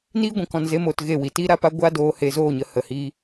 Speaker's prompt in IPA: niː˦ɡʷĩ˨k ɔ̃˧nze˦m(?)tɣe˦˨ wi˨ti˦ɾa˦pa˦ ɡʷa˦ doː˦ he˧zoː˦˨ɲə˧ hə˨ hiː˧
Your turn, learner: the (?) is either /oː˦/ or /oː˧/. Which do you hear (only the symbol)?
oː˧